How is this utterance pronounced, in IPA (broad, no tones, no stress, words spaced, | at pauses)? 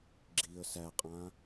ɡ͡ǁiə̯ sæqʼã